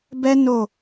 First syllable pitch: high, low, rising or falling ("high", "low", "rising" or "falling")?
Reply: high